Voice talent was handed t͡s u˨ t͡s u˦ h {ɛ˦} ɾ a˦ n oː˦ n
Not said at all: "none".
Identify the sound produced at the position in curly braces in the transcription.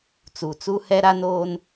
ɛ˦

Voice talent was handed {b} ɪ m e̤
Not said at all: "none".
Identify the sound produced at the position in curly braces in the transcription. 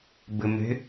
b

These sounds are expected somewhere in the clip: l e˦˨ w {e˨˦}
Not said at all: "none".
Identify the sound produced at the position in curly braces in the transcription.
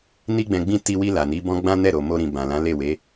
e˨˦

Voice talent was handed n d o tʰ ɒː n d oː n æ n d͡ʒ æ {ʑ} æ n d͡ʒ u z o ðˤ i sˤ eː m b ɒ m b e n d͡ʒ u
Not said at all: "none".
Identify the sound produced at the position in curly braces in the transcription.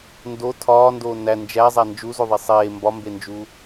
zˤ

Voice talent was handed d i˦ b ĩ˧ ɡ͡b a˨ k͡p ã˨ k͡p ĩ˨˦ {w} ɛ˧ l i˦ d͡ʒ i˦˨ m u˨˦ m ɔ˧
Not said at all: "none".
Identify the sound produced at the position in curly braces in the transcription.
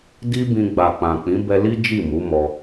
b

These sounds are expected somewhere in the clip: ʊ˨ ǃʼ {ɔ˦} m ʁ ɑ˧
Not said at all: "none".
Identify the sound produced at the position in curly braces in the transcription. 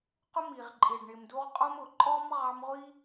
ɔ˦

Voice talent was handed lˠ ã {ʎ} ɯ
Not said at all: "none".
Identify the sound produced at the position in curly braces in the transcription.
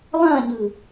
ɲ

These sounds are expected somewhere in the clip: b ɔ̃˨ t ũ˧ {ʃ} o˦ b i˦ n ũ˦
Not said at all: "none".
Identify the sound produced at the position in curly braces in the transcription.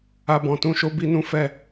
ʃ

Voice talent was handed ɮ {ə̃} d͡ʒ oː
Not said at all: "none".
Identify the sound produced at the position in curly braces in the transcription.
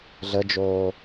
ə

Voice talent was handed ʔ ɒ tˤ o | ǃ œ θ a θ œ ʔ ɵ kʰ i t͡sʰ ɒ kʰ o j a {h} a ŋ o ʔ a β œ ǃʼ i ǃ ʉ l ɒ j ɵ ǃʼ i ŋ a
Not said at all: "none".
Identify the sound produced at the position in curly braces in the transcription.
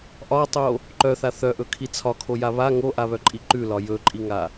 β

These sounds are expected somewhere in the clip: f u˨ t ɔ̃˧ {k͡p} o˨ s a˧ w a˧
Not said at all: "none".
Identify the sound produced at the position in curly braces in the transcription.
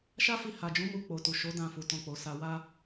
k͡p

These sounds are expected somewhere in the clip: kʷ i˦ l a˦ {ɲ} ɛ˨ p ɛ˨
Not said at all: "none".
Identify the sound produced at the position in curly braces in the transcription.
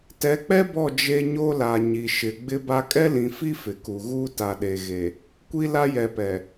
j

